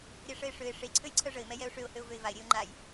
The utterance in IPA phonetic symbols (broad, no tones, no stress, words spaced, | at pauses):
ɾʲɛʂəɪ̯ʂøɪ̯ ʂe ǀʰøjǀʰœʐəɪ̯ mɛjɛʊ̯ʂøʊ̯ høʊ̯vøɪ̯vaɪ̯ ɾʲeʊ̯ŋ͡ǃaj